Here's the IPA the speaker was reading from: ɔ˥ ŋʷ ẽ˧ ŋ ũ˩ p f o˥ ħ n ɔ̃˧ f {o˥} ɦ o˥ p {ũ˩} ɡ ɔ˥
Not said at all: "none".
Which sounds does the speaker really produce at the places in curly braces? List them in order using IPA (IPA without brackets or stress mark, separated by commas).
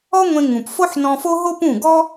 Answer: o˥, ũ˥˩